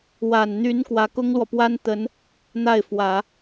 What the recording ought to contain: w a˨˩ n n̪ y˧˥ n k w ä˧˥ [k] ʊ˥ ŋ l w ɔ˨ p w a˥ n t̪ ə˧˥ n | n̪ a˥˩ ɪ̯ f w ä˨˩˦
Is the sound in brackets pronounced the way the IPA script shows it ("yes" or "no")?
yes